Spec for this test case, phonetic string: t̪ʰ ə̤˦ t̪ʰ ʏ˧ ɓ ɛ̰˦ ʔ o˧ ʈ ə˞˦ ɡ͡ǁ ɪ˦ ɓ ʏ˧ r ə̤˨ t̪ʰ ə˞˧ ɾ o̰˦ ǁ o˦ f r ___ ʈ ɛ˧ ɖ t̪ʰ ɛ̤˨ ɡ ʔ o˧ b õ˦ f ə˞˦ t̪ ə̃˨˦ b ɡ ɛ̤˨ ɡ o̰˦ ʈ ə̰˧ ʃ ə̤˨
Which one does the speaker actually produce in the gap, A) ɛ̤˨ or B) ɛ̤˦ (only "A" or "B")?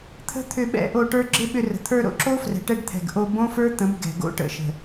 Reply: A